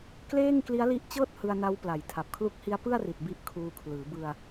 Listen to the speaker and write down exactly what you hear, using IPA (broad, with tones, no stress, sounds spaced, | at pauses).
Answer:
k l eː˥˩ ŋ k l i˦˥ a̯ l i˦˥ ʔ t͡ɕ ɤː˥˩ t̚ h ɯ˧ a̯ n a˦˥ w p l a˨˩ j tʰ a˨˩ p̚ kʰ l u˦˥ k̚ h i˦˥ a̯ p ɯ˥˩ a̯ r i˨˩ t̚ b i˦˥ ʔ kʰ uː˧ kʰ l ɯː˩˦ b ɯ˧ a̯